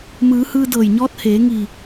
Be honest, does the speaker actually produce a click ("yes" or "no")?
no